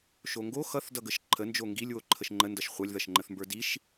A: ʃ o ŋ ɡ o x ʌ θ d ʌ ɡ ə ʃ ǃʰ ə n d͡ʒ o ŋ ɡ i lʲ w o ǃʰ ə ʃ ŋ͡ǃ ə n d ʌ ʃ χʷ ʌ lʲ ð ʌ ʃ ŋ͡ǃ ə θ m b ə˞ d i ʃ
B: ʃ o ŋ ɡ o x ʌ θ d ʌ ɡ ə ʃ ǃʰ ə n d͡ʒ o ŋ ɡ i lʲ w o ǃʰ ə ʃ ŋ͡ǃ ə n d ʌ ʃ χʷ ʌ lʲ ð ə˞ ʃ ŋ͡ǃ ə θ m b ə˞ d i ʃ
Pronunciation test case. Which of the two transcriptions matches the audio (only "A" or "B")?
A